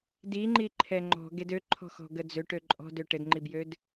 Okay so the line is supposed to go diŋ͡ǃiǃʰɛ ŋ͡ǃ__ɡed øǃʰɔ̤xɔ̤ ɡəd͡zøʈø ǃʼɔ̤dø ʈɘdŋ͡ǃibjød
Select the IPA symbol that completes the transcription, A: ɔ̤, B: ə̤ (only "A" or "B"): A